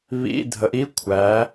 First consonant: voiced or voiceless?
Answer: voiced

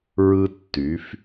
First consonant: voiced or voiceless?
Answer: voiced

